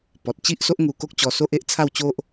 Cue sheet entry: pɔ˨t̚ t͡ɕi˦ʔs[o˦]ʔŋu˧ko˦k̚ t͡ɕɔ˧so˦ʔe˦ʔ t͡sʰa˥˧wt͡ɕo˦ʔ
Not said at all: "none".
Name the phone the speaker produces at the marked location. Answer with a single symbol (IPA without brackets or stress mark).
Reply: o˦